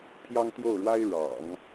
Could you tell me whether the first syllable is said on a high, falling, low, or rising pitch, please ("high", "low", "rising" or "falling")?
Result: high